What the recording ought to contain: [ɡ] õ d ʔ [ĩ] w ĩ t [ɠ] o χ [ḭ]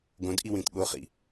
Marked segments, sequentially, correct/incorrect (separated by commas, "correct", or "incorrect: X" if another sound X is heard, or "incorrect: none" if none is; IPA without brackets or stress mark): correct, incorrect: i, correct, correct